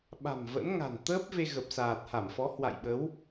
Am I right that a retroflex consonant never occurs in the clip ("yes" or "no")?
yes